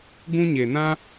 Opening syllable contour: high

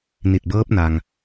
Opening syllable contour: low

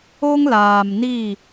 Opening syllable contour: high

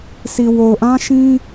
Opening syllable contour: low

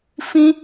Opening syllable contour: high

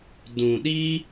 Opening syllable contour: low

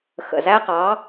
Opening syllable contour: low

